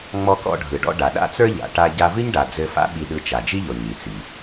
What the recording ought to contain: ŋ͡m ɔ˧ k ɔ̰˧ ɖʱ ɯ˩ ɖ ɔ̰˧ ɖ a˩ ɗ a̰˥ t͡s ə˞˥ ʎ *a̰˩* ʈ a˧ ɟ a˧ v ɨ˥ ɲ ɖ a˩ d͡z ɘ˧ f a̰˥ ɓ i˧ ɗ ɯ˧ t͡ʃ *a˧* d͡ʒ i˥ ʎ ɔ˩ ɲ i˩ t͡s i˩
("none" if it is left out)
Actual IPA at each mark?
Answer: a̰˩, a˩

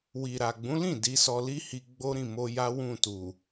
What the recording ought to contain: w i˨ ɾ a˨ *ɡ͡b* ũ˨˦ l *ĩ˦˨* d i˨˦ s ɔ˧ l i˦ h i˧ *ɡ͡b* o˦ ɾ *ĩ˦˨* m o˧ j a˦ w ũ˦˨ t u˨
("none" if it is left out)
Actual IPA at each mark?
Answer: ɡ͡b, ĩ˦˨, ɡ͡b, ĩ˦˨

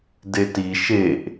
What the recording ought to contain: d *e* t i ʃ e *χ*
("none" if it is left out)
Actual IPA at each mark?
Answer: e, ʔ

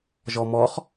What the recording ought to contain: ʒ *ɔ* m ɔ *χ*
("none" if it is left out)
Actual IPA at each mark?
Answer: ɔ, χ

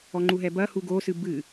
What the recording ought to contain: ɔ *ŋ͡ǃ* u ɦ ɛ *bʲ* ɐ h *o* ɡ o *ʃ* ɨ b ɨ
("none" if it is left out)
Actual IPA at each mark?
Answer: ŋ͡ǃ, b, u, s

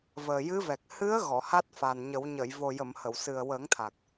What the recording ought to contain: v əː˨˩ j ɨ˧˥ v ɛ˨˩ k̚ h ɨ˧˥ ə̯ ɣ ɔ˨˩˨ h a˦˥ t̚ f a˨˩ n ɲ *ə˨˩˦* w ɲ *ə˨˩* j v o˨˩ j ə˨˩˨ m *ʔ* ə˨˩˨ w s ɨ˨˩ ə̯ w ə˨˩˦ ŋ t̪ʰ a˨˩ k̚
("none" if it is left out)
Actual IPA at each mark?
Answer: ə˨˩˦, ə˨˩˨, h

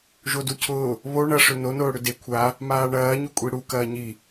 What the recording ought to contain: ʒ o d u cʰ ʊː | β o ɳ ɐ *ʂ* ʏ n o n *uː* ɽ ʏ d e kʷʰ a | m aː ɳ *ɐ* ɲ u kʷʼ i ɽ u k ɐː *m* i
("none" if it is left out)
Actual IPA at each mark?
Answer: ʂ, ʊː, ɐː, ɲ

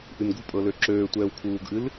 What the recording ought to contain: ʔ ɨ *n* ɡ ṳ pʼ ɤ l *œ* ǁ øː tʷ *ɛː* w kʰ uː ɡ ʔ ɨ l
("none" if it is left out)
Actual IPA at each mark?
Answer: n, ø, ɛː

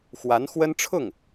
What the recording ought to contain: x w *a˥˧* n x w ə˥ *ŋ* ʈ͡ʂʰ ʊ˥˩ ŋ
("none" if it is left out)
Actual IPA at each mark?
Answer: a˧˥, n

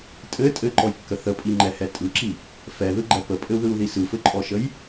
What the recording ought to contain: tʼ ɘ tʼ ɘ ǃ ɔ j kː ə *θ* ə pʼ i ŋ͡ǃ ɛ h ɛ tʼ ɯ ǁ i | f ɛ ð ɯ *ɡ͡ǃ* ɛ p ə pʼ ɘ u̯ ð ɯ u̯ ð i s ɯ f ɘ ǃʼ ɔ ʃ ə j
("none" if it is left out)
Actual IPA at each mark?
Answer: θ, ɡ͡ǃ

